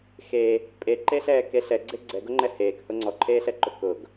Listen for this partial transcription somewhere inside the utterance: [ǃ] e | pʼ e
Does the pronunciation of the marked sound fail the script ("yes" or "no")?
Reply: yes